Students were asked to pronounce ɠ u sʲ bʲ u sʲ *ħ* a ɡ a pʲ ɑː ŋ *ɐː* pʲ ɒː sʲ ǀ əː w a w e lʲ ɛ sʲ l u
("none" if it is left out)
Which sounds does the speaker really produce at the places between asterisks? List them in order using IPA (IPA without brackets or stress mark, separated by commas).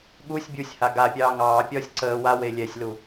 h, ɑː